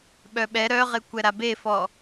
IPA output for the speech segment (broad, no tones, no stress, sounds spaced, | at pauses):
ɓ œ ɓ ɛ ɾ œ ʁ e kʷ ɛ ɾ a b e f ɔ